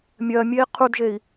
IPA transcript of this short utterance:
mʲ ɜ mʲ e i̯ qʰ u d ʒ e i̯

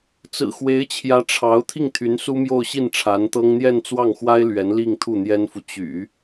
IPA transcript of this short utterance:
t͡s ɹ̩˨˩ x w e˧˥ ɪ̯ t͡ɕʰ j ä˧˥ ʈ͡ʂʰ ɑ˧˥ ʊ̯ t̪ʰ i˥˩ ŋ t̪ʰ y˧˥ n s u˥ m j o˥˧ ʊ̯ ɕ i˥˩ n ʈ͡ʂʰ a˧˥ n t̪ ɤ˥ ŋ n̪ j ɛ˥˧ n t͡s w ɑ˥˩ ŋ x w a˥ ɪ̯ l ɥ ɛ˧˥ n l i˥˧ ŋ t̪ʰ u˥˩ n̪ j ɛ˥ n f u˨ t͡ɕ y̰˨˩˦

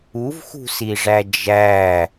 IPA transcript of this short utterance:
u v x ṳ s i ʐ æ d͡ʒ æ

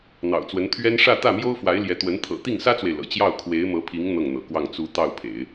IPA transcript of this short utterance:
n̪ ɑ̰˨˩ ʊ̯ t͡s w ə˧˥ n t̪ʰ ɥ ɛ˥ n ʂ ä˥˧ t̪ ä˥˩ m j o˥ ʊ̯ f w a˧˥ ɪ̯ l j ɛ˧˥ t̪ w ə˧˥ n t̪ʰ ɤ̰˨˩ t̪ i˥˩ ŋ s ä˥ t͡s w e˨ ɪ̯ l ɤ̰˨˩ t͡ɕ j ɑ˥˩ ʊ̯ kʰ w e˧˥ ɪ̯ m ɤ˧˥ pʰ i˧˥ ŋ n̪ ɤ˥˩ ŋ n̪ ɤ̰˨˩ k w ɑ˥˩ ŋ t͡s u˧˥ t̪ ɑ˥˩ ʊ̯ pʰ ḛ˨˩˦ ɪ̯

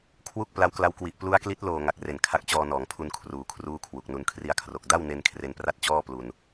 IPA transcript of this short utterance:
kʰ w u˥˩ k̚ p l a˦˥ w k l a˦˥ w k w i˨˩ ʔ p l u˦˥ a̯ k l i˦˥ t̚ l oː˨˩ ŋ a˨˩ k̚ r e˨˩ n kʰ a˦˥ k̚ t͡ɕ ɔː˧ n ɔː˩˦ ŋ pʰ u˧ n kʰ r uː˨˩ kʰ r uː˥˩ kʰ w u˨˩ k̚ n u˧ n kʰ r i˧ a̯ kʰ r o˨˩ k̚ d a˥˩ w n e˧ n kʰ r e˧ n p r a˥˩ t̚ t͡ɕ ɔː˥˩ p l u˧ n

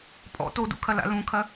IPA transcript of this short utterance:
pʼ ɔ̰ t o d ṵ kʰ ɐ l a̰ l ũ kʰ ɐ

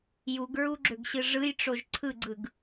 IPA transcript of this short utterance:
j u ɡ ɹ u ɡ͡ǁ ø ɡ ɕ ɯ ʐ ɯ j ʈ͡ʂ o ʒ ǀʰ ɯ ɡ͡ǀ ɯ ɡ

